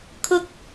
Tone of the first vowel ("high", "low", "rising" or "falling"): high